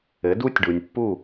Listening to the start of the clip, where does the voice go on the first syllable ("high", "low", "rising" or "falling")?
rising